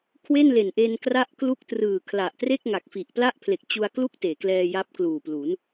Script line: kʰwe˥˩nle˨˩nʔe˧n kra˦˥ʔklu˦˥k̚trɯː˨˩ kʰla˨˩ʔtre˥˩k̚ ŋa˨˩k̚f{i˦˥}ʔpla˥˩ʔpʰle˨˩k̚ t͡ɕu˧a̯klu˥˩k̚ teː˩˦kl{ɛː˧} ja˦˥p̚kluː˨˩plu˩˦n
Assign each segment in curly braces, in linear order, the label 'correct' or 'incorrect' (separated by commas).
incorrect, correct